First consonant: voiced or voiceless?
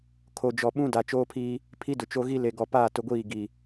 voiceless